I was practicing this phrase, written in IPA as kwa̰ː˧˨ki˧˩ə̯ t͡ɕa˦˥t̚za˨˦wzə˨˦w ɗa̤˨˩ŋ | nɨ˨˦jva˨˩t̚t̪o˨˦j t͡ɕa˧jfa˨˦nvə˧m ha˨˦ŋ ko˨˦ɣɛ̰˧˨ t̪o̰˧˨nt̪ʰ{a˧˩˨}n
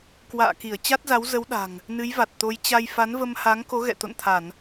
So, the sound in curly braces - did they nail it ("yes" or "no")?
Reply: yes